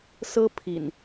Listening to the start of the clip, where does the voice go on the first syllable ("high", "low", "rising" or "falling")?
high